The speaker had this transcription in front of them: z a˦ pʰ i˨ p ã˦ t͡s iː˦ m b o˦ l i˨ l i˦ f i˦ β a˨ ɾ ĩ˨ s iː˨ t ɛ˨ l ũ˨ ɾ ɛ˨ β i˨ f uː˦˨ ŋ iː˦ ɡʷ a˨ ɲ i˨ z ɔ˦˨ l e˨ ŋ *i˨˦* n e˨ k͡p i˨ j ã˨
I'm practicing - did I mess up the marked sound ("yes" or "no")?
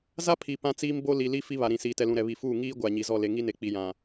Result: yes